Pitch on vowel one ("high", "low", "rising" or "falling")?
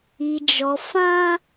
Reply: low